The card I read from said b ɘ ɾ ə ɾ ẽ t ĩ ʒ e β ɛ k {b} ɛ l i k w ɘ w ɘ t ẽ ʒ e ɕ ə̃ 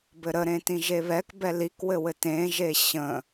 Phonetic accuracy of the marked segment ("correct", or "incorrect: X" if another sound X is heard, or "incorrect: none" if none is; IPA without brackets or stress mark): correct